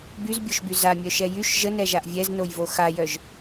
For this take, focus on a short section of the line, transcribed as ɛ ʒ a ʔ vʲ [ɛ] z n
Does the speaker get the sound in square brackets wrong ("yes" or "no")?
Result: no